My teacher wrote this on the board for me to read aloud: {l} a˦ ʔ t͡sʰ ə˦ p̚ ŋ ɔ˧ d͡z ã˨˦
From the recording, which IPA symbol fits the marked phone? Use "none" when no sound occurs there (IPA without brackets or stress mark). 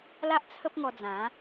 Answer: l